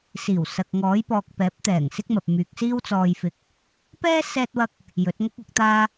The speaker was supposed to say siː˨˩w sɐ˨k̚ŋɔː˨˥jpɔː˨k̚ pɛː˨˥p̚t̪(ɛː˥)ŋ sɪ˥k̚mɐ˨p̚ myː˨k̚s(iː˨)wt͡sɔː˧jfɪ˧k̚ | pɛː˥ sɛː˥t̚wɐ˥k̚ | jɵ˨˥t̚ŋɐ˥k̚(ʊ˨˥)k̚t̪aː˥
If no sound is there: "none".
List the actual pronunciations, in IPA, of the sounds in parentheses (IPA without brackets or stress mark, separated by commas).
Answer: ɛː˨˩, iː˥, ʊ˨˥